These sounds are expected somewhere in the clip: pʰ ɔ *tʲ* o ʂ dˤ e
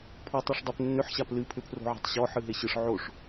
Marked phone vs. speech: incorrect: tˤ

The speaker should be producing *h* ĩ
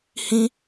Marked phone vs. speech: correct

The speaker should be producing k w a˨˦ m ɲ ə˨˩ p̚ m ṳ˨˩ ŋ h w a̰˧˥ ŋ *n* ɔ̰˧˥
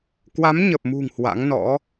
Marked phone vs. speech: correct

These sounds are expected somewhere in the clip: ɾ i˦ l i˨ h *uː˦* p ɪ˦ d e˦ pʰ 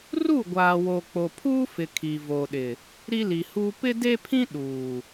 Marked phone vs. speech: correct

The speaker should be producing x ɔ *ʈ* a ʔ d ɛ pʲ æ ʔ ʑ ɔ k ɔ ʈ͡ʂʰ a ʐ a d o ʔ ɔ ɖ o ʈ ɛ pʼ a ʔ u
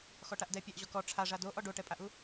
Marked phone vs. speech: correct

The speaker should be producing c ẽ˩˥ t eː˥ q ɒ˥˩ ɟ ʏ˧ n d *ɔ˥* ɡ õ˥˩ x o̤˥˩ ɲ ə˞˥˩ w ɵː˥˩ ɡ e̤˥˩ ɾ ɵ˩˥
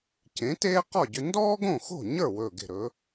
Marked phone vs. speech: incorrect: ɔː˥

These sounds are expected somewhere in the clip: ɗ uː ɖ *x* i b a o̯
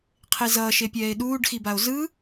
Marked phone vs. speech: correct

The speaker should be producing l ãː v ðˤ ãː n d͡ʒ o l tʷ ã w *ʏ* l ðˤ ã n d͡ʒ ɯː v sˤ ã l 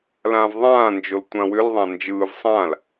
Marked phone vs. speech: correct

